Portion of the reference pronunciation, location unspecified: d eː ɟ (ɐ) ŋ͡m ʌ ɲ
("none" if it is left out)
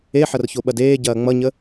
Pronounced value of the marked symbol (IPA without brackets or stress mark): ɐː